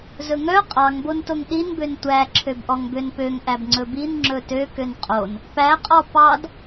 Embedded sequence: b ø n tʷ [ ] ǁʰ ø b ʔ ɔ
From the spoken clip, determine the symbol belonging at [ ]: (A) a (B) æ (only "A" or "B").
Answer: B